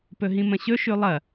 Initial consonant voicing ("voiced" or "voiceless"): voiceless